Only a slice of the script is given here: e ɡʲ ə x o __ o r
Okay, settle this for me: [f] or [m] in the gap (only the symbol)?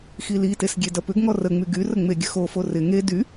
f